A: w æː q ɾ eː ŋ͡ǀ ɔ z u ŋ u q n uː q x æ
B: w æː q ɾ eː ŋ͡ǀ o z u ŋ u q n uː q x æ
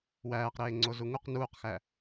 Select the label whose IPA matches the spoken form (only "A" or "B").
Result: B